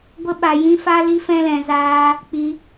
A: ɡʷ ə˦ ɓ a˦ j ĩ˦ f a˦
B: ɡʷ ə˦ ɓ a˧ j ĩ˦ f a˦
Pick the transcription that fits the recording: B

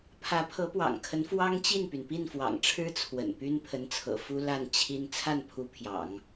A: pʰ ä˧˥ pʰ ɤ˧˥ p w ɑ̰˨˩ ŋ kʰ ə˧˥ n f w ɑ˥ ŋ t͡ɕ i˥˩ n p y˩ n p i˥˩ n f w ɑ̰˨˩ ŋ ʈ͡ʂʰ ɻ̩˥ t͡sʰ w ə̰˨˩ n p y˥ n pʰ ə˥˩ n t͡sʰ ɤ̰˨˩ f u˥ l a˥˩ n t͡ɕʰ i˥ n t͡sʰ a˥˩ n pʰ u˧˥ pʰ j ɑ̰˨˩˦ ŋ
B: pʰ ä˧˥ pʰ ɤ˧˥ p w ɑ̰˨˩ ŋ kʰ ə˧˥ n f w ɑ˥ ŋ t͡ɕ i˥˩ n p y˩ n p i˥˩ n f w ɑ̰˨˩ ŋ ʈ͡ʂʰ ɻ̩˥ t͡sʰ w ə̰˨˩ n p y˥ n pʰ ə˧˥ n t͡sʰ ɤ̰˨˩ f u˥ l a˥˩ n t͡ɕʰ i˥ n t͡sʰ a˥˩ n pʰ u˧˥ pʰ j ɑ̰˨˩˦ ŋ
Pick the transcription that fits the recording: B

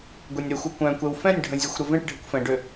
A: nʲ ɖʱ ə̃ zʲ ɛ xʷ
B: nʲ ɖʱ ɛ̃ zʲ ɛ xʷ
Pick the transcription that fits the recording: A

